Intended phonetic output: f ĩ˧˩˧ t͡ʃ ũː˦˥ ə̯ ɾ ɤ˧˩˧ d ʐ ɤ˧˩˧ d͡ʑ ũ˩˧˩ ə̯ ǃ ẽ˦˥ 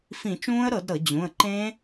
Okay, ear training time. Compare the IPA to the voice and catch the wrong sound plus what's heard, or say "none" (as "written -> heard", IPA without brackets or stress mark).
ʐ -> ɾ